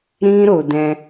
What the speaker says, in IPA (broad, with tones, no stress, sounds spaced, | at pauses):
ɾ ĩ˦ ɾ o˧ d ɛ̃˧